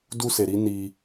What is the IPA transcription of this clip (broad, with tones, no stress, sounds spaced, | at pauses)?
d u˦ s e˧ ɾ i˦ n i˦